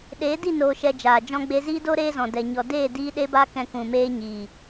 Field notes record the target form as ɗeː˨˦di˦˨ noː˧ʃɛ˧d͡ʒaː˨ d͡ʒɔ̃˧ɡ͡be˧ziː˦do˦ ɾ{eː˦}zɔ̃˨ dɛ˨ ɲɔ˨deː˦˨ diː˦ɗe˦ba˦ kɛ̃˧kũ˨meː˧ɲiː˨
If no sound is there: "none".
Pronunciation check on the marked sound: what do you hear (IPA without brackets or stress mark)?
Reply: eː˦